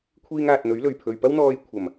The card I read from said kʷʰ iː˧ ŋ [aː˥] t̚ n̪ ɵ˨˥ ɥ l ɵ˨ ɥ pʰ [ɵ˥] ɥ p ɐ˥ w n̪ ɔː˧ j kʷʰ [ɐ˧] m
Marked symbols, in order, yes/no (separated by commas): no, no, no